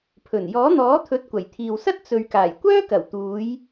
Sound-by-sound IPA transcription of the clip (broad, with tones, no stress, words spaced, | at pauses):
pʰɵ˨˩n jɔː˨˥n̪ɔː˨˥t̪ʰɵ˨˥t̚ kʷɐ˨˩jt̪ʰiː˨wsɐ˥t̚ t͡sɵ˨ɥkaː˨˩j kʷœː˥kɐ˨˩wt̪uː˨˧j